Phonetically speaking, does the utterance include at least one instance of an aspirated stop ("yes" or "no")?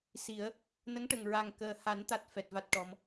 no